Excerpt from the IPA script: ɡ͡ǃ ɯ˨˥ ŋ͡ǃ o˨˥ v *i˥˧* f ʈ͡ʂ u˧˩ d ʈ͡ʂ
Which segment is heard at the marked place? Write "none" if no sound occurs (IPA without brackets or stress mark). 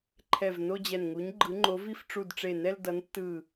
i˥˧